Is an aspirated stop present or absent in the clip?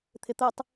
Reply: present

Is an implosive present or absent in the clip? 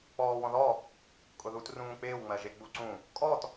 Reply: absent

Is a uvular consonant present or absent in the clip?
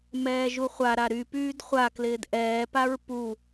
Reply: present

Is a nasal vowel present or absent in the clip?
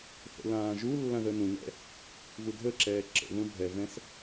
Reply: present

